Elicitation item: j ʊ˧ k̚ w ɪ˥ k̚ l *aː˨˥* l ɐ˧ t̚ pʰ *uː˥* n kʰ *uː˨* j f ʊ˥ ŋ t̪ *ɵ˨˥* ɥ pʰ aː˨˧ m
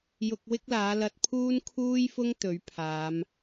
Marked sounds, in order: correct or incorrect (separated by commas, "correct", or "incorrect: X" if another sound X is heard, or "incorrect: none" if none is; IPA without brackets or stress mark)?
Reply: correct, correct, incorrect: uː˥, correct